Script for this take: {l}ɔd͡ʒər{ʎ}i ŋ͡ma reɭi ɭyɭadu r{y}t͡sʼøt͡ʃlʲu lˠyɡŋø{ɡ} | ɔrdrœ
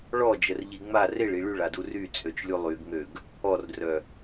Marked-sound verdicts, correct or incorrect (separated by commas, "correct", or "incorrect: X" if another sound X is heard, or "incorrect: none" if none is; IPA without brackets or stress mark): incorrect: ɭ, correct, correct, correct